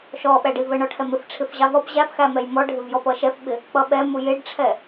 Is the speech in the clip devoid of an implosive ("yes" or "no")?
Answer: no